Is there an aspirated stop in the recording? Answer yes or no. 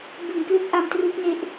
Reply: no